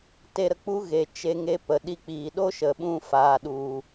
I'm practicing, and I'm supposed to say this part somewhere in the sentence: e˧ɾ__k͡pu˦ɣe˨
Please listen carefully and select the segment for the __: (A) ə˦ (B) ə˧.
B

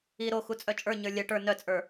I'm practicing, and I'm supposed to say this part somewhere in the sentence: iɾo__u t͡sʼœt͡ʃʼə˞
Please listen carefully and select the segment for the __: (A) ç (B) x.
B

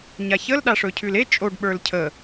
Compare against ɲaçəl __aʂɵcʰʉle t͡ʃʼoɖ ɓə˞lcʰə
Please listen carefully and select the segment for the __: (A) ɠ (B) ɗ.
B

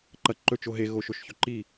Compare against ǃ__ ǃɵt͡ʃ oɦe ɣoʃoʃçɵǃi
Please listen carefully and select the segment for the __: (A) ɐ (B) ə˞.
A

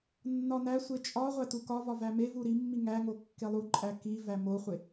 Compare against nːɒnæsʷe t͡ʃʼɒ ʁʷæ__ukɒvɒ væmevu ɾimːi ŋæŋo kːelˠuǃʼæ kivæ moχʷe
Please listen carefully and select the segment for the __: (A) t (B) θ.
A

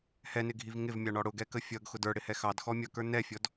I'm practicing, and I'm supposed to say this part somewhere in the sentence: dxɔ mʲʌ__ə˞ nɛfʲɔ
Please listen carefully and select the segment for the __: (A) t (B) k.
B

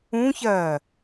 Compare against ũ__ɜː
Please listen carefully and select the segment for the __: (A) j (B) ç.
B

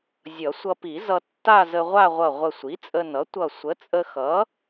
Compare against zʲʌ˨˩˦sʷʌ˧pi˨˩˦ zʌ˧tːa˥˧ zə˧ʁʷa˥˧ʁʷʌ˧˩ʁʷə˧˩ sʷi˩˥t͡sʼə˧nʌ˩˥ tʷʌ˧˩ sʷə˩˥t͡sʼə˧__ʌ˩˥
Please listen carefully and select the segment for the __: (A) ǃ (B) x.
B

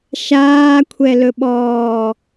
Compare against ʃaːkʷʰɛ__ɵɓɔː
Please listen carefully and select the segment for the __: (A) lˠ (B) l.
B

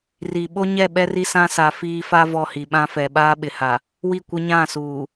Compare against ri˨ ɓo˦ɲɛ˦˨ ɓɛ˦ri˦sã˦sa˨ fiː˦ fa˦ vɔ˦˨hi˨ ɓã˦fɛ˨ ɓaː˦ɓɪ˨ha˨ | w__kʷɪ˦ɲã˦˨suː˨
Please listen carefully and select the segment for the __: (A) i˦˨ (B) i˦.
A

